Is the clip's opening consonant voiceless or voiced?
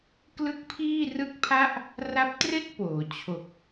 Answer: voiceless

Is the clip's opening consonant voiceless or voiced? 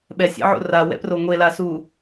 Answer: voiced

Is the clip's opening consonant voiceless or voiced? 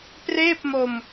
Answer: voiceless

